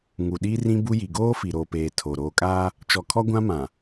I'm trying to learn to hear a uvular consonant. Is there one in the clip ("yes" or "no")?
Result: no